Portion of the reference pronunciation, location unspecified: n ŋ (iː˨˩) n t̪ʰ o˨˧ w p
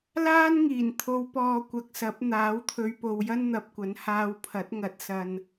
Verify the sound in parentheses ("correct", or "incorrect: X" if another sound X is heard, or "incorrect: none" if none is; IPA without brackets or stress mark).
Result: correct